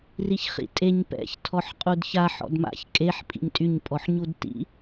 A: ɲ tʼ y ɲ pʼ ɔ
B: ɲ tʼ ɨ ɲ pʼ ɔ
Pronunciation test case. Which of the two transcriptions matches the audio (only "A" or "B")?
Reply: A